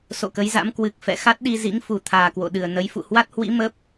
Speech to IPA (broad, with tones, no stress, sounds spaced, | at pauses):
s o̰˧˨ k ə˨˦ j z a̰˧˥ m k w ɨ˨˩ k̚ f ɛ̰˧˨ x a˦˥ t̚ ɗ i˧ z ḭ˧˥ ŋ f u˨˩ t̪ʰ aː˨˩ k w o̰˧˨ ɗ ɨ˨˩ ə̯ n ə˨˦ j f ṵ˧˨ h w a˦˥ t̚ h w ḭ˧˥ m ə˦˥ p̚